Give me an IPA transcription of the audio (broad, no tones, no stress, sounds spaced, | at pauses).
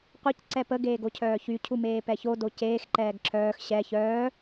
qʷ e c ǀ ɛ p ə ɡ eː ɡ o cʰ œː ç y cʰ u m eː p ɛ ç o d o c eː x ǃ ɛː ɡ ǁ œː x ɕ ɛ ç œː